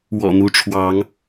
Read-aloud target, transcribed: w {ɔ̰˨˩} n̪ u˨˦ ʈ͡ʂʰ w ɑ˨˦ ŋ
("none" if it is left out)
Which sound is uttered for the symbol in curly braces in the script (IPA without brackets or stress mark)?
ɔ̰˨˩